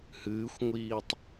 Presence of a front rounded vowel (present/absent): absent